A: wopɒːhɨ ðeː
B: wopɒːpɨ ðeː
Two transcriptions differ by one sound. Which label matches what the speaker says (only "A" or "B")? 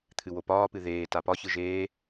B